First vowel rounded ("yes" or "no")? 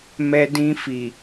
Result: no